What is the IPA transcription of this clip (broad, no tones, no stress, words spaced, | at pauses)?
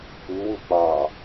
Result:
uwu k͡pɑ